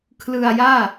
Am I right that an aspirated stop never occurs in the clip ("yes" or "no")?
no